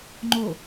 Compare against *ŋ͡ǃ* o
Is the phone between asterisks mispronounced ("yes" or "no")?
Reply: no